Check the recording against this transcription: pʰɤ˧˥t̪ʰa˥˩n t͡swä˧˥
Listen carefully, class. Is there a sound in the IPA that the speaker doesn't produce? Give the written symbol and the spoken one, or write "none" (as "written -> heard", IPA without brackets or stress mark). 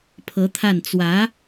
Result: none